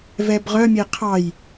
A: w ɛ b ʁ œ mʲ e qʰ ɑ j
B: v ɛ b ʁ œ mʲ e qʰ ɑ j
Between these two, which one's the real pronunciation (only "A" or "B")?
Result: B